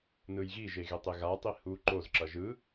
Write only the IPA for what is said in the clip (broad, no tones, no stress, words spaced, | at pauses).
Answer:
nɯjɣiʒe ɣetˤeɣatˤi hu ǃozǁʌ ʒɯ